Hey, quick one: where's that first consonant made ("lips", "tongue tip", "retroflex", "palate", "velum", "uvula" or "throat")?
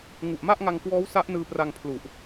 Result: velum